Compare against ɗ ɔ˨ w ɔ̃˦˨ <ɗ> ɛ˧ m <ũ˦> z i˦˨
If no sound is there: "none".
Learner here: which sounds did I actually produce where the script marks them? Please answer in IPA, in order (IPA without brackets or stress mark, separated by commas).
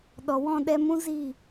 ɗ, ũ˦